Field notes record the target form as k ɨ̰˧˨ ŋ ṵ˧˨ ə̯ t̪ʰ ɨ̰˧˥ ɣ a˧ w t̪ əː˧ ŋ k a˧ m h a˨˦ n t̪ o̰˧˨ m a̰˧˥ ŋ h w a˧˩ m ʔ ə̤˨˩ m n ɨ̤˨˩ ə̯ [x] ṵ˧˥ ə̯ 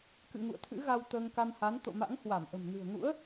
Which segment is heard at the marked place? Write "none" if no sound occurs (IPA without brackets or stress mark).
ŋ